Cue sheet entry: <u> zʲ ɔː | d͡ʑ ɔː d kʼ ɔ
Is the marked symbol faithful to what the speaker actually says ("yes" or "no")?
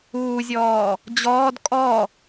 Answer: no